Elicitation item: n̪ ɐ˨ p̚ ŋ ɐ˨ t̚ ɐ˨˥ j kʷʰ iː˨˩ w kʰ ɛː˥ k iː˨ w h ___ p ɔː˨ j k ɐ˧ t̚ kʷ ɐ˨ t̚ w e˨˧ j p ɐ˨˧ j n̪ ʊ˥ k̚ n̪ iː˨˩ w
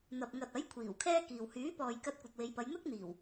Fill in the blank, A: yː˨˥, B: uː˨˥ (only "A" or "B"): A